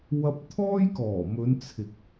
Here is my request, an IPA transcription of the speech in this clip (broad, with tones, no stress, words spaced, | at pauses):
wɐ˧p̚t̪ʰɔː˥jkɔː˨˩mɵ˨˧n t͡sʰɪ˨k̚